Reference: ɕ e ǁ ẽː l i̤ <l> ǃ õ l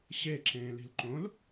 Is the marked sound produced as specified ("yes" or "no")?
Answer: yes